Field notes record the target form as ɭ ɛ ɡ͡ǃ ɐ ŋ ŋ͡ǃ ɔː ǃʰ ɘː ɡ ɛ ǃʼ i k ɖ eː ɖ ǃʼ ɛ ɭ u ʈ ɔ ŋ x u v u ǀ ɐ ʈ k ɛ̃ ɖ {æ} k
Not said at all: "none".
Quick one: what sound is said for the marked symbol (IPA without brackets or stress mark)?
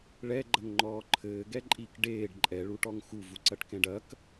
ɐ